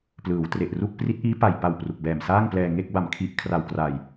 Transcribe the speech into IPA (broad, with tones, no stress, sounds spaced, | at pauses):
p l ɯː˩˦ w t r e˨˩ ʔ r u˥˩ k̚ p r i˦˥ t̚ ʔ iː˦˥ p a˨˩ j p a˨˩ w p r u˨˩ k̚ b ɛː˨˩ m s aː˥˩ ŋ p l ɛː˧ ŋ e˥˩ k̚ b a˨˩ m kʰ i˦˥ ʔ kʰ r a˨˩ w k r a˨˩ j